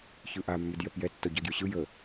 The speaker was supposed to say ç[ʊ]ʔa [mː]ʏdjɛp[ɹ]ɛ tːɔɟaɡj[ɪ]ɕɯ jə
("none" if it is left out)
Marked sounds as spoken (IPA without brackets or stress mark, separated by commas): ɯ, mː, j, ʏ